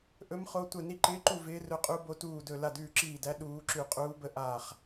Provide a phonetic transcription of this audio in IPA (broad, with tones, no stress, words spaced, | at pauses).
ʔɵ˦˥mχo˦˥ tʷə˥˨ ni˥˨ǃɪː˦˥ǃu˥˨ vɪː˦˥rɵ˦˥qʼu˦˥ bo˦˥tuː˥˨dɵ˥˨ la˥˨dʉː˥˨ǁiː˥˨dæ˦˥ ɗuː˦˥ǁʉ˥˨ qʼuː˦˥bə˦˥ ʔaː˥˨χ